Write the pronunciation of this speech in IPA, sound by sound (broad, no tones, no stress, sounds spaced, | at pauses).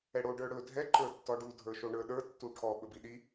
ɛ ɽ o ɖ ə˞ ɽ ɵ dʱ ɛ ǃ ə˞ tː ɔ ɖ u dʱ ə˞ ʃ o ɳ ə˞ ɗ ə˞ tː u ʈʰ ɔ ɓ ɵ b i ɗ i